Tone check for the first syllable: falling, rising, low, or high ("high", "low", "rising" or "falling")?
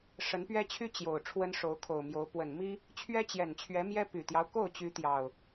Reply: rising